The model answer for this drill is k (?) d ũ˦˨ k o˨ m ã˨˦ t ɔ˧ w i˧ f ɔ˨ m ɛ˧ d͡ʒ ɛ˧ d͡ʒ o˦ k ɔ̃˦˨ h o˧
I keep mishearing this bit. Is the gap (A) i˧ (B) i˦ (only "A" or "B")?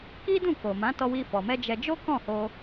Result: B